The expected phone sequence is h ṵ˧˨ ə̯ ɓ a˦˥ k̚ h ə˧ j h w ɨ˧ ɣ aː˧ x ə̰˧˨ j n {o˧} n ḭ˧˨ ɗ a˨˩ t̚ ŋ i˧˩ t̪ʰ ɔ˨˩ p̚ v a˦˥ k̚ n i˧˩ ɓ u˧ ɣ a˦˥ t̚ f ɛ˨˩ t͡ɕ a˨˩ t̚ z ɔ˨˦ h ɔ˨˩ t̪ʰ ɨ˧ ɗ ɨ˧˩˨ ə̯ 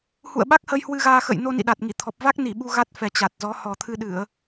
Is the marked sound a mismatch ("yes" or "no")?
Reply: no